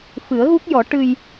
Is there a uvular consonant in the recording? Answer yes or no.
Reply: no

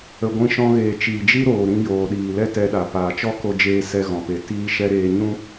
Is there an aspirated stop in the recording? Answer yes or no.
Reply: no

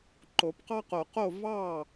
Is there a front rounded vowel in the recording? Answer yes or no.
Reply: no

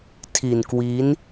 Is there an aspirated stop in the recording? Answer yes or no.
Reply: yes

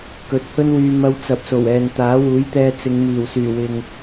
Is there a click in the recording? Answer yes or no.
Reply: no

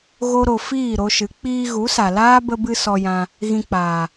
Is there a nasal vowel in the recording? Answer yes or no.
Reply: yes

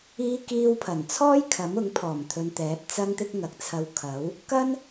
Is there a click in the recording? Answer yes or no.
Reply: no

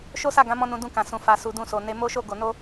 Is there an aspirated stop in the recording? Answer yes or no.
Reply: no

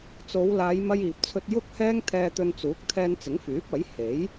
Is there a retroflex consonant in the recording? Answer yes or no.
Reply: no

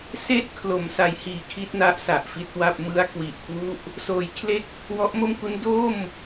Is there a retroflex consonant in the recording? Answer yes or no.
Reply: no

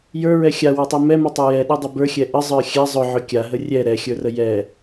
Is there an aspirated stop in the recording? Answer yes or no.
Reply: no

